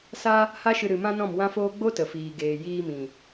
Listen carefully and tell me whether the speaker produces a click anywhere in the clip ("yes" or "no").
no